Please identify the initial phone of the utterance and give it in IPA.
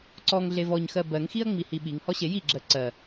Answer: ǀ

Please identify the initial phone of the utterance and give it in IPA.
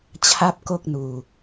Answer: t͡ɕʰ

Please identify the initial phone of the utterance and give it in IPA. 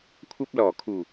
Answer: kʷʰ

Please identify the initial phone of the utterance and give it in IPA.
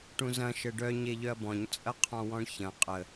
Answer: ʈ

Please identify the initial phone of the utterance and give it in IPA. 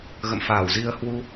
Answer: ɣ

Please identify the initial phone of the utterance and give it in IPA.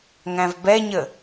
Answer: ŋ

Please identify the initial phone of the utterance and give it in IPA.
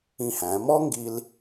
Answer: ĩ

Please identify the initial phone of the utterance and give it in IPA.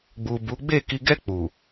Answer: ɡ͡b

